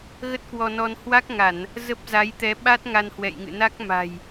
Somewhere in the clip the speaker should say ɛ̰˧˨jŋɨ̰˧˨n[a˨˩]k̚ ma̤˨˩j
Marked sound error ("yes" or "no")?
yes